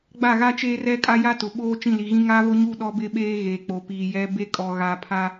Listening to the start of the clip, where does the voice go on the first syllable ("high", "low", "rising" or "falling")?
falling